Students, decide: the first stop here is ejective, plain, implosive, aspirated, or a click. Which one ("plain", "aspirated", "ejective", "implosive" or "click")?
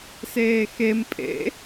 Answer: ejective